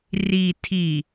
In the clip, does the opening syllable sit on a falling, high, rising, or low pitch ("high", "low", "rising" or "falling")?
low